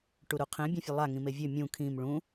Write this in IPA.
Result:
ʈuɾuqʰẽ bʲẽfʲəlˠa ŋĩmevʲø mʲũ kʰĩm ɭũ

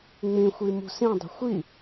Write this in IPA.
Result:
ŋ͡mĩxʷi mṳsĩdˤi̤ xʷi

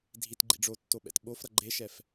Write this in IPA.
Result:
dʱitɡ͡ǃḭ ɖ͡ʐotːoɓɛ̰t ɓofɾʌ ɡ͡ǃeʃɛf

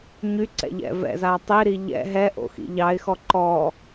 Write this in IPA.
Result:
ɲyǀɛ̰ʎɛ̰ vɛ̰za tˤiɾi ʎɛ̰ ɦɛʔo̰xḭ ʎɑɪ̯xɔ ǃɔ

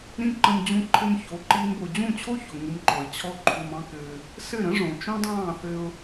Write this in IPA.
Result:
ɾĩ˦ǃə̃˧m d͡ʑũ˧ǃʰɘ˧mço˨˦ ǃiː˦mbo˧ d͡ʑũ˦˨t͡ɕʰo˦ço˨ ŋu˦mǃɔ˧ɪ̯ t͡ɕʰɔ˦ǃʰu˧mɑ̃˦kɘː˧ | sɘ˦˨ɾə̃˦ ʐõ˨t͡ʃõ˦dˤɑ̃ː˦˨θɘ˧ʊ̯

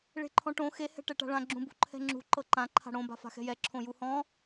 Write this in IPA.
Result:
ɭe̤ǃʰɔ̃ʈõ xe hɛ̤ʈɛʈa̤ɭã ɡ͡ǁũbṳǃʰɛ̤ŋ͡ǁṳ ǃɤǃã ǃʰa̤ɽõ ba̤fa̤xɛ̤jɛ ǁʰõjuhɔ̃

